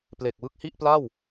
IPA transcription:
p l e˨˩ k̚ w ɯ˥˩ k̚ h i˥˩ ʔ p l a˥˩ w

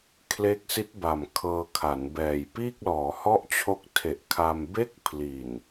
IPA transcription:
kʰ l e˦˥ k̚ s i˦˥ t̚ b a˨˩ m kʰ ɤː˧ kʰ a˩˦ n b ɛː˨˩ j p iː˥˩ k̚ l ɔː˩˦ h ɔ˥˩ ʔ t͡ɕʰ o˦˥ k̚ tʰ e˨˩ ʔ kʰ a˧ m b e˥˩ k̚ pʰ l i˨˩ n

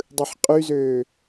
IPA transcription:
dˤ ɯ ħ qʼ y z øː

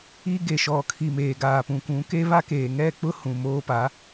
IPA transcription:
i˦ ɡ e˨ ʃ ɔ˨ kʰ i˨ m eː˨ ɡ aː˨ p ũ˨ kʷ ũ˨˦ k e˦ β a˦ k eː˨ ŋ ɛ˦˨ k͡p ʊ˦ h ũ˨ m oː˦ p a˨˦

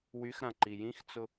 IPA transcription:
w y x ɾ ã ǃ i j ĩ x t͡s ʊ

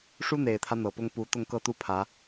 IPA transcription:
ʂ u˥ n̪ e˨˩ ɪ̯ t̪ʰ ä˦ n̪ ɤ˨˩ p ʊ˥ ŋ p u˧˥ t̪ ʊ˥˧ ŋ k ɤ˥˧ t̪ u˥˩ pʰ ä˧˥

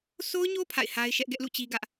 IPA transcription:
sʰ o˦ ʊ̯ ɲ o˦ pʰ a̰˦˨ ɪ̯ h a˦ ɪ̯ ʃ ɛ˦ ʔ ɡ ɛ˦ ʔ l ṵ˦˨ t͡ɕ i˦ ɡ ä˦ ʔ

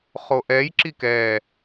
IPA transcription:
χ o ʔ ɛ j ǁ i k ɛː

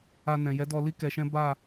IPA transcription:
a˧ n ɛ̃˨ j ɛ˨˦ d ɔ˧ l i˦ k ɛ˧ ʃ ɛ̃˦ b a˦˨

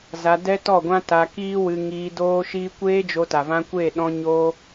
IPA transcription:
z a˧ d ɛ˦ t ɔ˦˨ ɡʷ ã˦ t a˧ k iː˦ w ɨ˧ ŋ iː˧ d oː˦ ʃ iː˦ kʷ eː˦ d͡ʒ o˧ t a˨ v ã˧ kʷ e˦˨ ɗ ɔ̃˦ ɲ oː˦

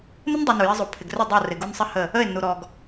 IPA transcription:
n ɪ˦ n dˤ u˨ n u˨ j e˦ zˤ u˨ pʰ ɪ˨ ɡ r ʏ˦˨ dˤ ɪ˦˨ ʊ̯ r ɪ˨ ɡ u˦ n sˤ ɪ˦ h ə˦˨ | ə˦˨ ɪ̯ nː u˨ ɾ ɔ˨ ɡ

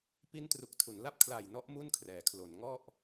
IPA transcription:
p i˦˥ n t r u˨˩ k̚ tʰ u˩˦ n l a˥˩ p̚ kʰ l a˨˩ j n ɔ˦˥ ʔ m u˥˩ n kʰ r ɛː˩˦ kʰ l o˩˦ n ŋ ɔ˥˩ ʔ

